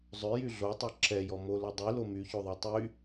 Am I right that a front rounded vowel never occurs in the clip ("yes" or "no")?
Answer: no